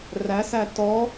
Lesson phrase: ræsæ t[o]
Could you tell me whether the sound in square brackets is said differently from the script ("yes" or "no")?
yes